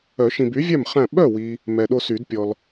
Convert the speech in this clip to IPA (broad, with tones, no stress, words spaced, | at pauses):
œ˨˩˦ʃĩ˨by˩˥vʲæ˥˨m χæ̃˥˨ ɓœ˥˨wi˨ | mɛ˨ɗo˦sy˨˩˦dpʲɔ˨l